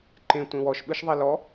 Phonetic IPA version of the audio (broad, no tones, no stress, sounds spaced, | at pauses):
ǃ ẽ tʷ ẽ w ɔ ʃ ɓ ɯ ʃ ðˤ e l ɔ